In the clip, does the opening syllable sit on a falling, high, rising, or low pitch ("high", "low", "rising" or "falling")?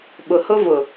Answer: low